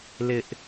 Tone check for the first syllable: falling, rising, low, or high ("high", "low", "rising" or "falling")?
high